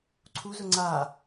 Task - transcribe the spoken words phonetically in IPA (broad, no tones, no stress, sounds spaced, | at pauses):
ǀʰ u z ʊ ŋ͡ǀ a